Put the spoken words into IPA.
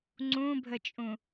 ŋ͡ǀ ũ bʱ ə t͡ʃʼ ũ

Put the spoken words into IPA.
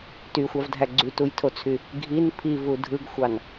t y xʷ ɑ v dʱ æ ɡ͡ǀ y t u j tʰ o t͡sʰ y | ɡʱ i n pʰ i v u dʱ ɯ ɡ xʷ ɑ n

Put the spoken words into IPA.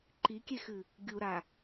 ǃ i kʲ e x ɨ | ɡʲ u ɾ a

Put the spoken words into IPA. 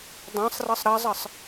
dˤ ã sˤ r ɤ sˤ ɾ ɑ zˤ ɤ sˤ

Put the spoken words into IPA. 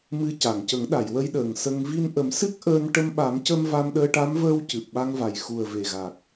m ɨ˧ c a˨˩˨ ŋ c ə˨˩˦ ŋ ɗ a˨˩˨ j w ə˧ j ɗ əː˨˩ ŋ s ə˧ ŋ v i˧ n ʔ ə˨˩˦ m s ɨ˦˥ k̚ ʔ əː˧ n ʈ ə˧ m ɓ a˨˩˦ m c ə˧ m v a˧ m ɗ əː˧ ʈ a˧˥ m v əː˧ w c ɨ˨˩ p̚ ɓ a˧ ŋ v a˨˩ j x u˨˩ ə̯ v e˨˩ ɣ a˨˩ k̚

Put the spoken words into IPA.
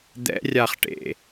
d̪ ɛ̰ rʲ a χ ʈ ḛ

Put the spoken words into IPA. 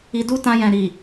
i˧ d u˦ t ã˧ j ɛ̃˨ ɾ i˨

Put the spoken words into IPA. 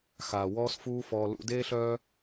x aː˨ w ɔː˦ s f uː˦ f ɔː˧ l ṵ˧ d eː˦ ɬ œː˦

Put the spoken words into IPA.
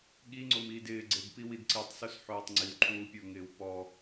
ɠ i ŋ͡ǀ o m iː d ɪː ɡ͡ǀ e b p i w i d ǀ i tˤ s o s ħ oː tˤ ŋ͡ǀ i w ǃʰ uː pʲ ə˞ ŋ ɪː w p ɔ

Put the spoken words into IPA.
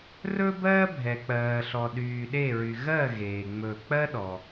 r ɵ˥ b ɜː˥ bʱ ɛ˨ k͡p ɜː˨ ɬ ɔ˨ ɗ yː˨ ɗ e˦˨ ɹ y˨ ɣ ɜ˦˨ ɣ eː˨ ŋ͡m ɵ˦˨ k͡p ɜ˥ ɗ ɔ˨

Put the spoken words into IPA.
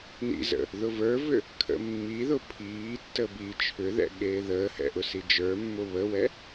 n ḭ z ə̰ | ð ʊ v ə˞ v ʏ | kʰ ə̰ mː i ð ʊ pʰ iː tː ə b i t͡ʃʰ ʏ ð ɛ̰ ɠ eː ð əː h ɛ̰ ʔ ʊ s i d͡ʒ ə˞ mː ʊ β ə w ɛ

